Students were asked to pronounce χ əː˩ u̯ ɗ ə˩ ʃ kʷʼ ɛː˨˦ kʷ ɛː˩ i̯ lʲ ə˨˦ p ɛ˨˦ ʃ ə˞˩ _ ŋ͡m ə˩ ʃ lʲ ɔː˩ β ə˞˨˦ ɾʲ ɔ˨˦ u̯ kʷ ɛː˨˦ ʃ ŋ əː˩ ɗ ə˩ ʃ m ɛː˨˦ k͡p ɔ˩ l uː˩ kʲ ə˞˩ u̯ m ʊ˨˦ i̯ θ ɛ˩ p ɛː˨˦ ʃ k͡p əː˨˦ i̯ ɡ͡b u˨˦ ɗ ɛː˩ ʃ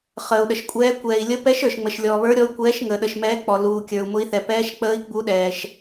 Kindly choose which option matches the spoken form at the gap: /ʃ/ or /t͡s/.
ʃ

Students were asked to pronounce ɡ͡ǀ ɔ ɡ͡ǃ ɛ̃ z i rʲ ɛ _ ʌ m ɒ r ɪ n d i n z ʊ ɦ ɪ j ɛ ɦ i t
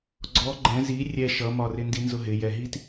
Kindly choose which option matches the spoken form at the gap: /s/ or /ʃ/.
ʃ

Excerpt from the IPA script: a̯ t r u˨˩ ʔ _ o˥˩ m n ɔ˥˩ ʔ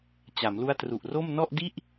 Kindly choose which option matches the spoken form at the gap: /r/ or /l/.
r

